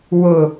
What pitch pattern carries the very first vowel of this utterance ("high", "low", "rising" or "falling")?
low